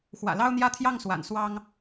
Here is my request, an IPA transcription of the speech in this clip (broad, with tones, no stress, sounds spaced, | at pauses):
x w ä̰˨˩ l ɑ˦ ʊ̯ n̪ j ä˥˨ t̪ʰ j ɑ˥˨ ŋ s w a̰˨˩ n s w ɑ˦ ŋ